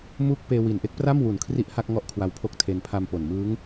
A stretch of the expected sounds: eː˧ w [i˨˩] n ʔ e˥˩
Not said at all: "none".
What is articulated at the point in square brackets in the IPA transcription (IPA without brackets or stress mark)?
i˨˩